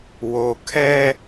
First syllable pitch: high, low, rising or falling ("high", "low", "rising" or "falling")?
low